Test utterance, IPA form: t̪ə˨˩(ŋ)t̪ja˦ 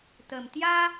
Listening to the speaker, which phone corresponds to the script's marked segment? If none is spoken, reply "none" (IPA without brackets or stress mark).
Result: m